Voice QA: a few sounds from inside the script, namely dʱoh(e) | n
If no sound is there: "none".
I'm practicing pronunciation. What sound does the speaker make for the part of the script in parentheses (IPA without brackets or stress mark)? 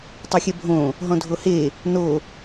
e